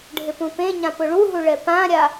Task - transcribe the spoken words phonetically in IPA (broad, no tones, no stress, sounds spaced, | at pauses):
ɖʱ ɪ p ũ p ẽ ɲ ã p ʊ ɭ u ɦ u ɭ ɛ p ã ɾʲ a